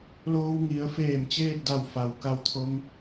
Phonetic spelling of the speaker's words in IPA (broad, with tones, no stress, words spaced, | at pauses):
loː˧wŋi˩˧ə̯feː˧˩m t͡ɕeː˥˨t̚da˧˩w fa˩w ka˧wt̪ʰo˧ŋ